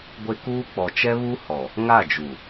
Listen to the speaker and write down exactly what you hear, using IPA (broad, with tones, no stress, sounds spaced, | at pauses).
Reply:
ɡʷ e˦ k uː˦ k͡p ɔ˨ t͡ʃ ɛ˦ β u˦ h ɔ˨ | ŋ a˦˨ d͡ʒ u˨